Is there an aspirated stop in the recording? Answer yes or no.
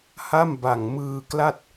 no